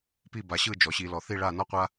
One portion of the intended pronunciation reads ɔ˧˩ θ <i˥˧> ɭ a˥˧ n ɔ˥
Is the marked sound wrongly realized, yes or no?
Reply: no